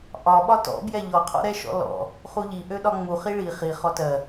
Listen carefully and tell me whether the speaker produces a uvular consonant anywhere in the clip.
yes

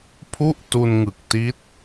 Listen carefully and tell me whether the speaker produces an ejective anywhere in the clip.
no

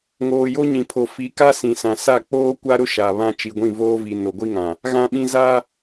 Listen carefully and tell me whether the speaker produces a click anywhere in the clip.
no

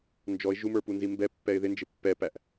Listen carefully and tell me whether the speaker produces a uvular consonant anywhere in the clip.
no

